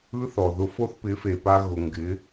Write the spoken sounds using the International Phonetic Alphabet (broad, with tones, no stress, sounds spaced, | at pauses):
ɯ˦ θ ɔ˨ ð ʊ˧ f o˦ θ p ɪ˨˦ f e˨ p a˧ ɣ ʊ˨ ŋ ɡ ɪ˨˦